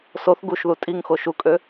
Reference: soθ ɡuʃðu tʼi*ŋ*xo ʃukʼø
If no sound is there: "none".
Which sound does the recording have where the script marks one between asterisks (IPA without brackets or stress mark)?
ŋ